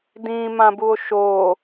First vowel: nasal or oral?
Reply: nasal